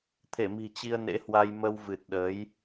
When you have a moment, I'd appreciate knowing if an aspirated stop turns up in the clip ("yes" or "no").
yes